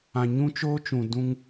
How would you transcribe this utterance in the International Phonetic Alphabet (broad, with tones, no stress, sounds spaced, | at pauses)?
ã˨ ɲ ũ˦ t͡ʃ oː˦ t͡ʃ ũ˨ d ũ˦ ŋ